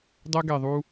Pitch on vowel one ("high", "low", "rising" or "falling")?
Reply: high